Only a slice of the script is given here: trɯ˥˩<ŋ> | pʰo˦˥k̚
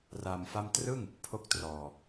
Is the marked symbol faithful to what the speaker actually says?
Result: yes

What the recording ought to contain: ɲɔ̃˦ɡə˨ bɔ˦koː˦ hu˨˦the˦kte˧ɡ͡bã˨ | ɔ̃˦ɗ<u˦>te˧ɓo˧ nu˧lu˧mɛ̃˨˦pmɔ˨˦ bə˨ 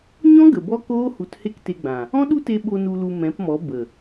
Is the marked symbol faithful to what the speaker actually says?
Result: yes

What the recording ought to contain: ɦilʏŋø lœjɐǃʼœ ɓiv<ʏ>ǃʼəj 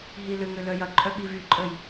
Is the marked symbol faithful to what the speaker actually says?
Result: no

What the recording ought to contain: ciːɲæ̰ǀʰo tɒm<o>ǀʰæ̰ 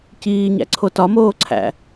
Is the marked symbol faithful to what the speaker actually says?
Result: no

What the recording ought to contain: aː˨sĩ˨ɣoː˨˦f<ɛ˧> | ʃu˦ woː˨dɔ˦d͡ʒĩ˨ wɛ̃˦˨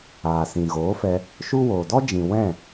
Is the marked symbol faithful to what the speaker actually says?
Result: yes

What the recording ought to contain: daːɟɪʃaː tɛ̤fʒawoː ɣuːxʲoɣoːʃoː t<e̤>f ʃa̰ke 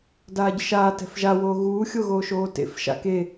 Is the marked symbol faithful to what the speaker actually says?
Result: no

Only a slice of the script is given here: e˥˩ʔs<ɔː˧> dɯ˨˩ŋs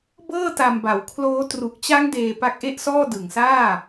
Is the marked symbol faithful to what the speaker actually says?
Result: no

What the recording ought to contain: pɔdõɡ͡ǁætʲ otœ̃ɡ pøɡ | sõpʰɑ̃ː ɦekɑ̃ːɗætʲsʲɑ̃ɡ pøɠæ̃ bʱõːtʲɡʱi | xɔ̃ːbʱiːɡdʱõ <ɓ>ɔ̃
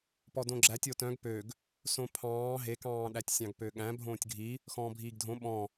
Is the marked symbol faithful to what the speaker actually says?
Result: yes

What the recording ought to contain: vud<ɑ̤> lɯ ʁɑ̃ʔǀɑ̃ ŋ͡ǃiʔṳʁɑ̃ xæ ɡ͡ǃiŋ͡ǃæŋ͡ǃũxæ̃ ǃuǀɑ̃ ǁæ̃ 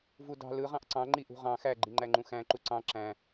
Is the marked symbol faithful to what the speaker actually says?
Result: yes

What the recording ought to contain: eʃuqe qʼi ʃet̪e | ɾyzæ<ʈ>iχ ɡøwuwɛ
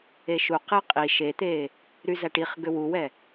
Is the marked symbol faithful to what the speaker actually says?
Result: yes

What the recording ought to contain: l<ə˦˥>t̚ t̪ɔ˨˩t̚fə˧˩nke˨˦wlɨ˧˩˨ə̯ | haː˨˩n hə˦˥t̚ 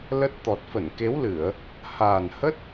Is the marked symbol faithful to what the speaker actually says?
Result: yes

